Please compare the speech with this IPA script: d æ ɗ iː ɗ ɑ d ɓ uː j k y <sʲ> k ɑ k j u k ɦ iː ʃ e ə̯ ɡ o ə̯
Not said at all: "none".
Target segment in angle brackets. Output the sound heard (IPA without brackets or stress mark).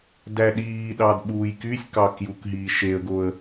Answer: sʲ